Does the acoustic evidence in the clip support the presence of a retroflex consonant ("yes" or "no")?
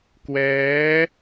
no